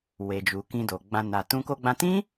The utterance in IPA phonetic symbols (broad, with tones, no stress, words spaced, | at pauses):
we˨d͡ʒu˨ kĩ˧do˨ɡ͡bã˧ na˨tũ˧ ko˧ɡ͡bã˧tĩ˦